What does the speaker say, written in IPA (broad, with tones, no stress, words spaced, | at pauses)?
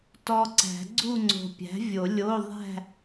tɔ˨ ǀæ̤˨˩˦ɡ͡ǀu˥˧ ŋ͡ǀo̤˨pʲæ̤˩˥vʲo˨˩˦ lʲo˧˥˧ ðˤæ̤˥˧